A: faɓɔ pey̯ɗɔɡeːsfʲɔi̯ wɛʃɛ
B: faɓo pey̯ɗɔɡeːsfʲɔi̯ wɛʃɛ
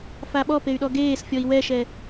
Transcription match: A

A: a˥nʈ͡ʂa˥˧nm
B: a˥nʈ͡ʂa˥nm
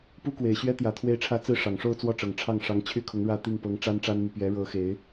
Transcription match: B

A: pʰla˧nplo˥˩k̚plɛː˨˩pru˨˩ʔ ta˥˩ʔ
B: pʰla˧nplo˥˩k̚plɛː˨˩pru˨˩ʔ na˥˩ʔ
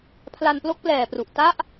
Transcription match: A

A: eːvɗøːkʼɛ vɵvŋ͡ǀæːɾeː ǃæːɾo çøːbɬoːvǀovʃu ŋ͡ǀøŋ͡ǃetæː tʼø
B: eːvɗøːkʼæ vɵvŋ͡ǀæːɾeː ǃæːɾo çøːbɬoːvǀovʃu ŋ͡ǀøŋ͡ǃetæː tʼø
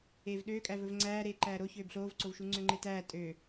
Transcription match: B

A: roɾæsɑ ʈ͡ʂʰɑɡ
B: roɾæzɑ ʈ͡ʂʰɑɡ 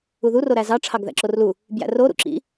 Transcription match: B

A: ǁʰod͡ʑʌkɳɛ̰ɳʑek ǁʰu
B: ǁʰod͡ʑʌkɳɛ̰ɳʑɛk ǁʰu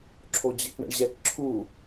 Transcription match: B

